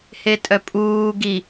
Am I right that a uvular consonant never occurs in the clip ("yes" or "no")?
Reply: yes